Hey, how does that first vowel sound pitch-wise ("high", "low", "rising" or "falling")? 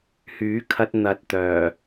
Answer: rising